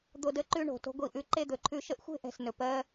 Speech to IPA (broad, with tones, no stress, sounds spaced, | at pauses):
d̪ o˨ d ə˨˦ ǃ ʉ˧ ɳ o̤˨ t o̤˧ ɡʷ i˨ ʔ ʉ˨ ǃ e˧ d̪ ɵ˨ ǃʰ ʉ˧ ʃ ə˦ ʔ xʷ e̤˦ ʔ ɛ̤˨ s n ɵ˨ p ɜ˧